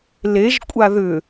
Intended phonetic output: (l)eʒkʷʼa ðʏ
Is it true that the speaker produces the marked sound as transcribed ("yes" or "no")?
yes